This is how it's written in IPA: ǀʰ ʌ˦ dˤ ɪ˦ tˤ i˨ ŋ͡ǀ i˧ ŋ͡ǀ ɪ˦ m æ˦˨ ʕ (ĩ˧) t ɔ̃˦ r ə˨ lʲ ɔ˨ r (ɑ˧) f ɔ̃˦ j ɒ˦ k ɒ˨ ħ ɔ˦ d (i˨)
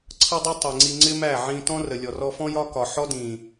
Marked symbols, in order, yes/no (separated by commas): yes, no, no